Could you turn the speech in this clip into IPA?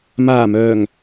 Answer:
maː˨˩mœː˨˩ŋ

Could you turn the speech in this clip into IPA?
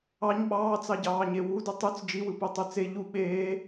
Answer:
ɑɲ ɓɑːt͡sɑɟɑːɲe wudɯ tˤyt͡s d͡ʒiwɯpetˤø t͡se ʎu ɓeː

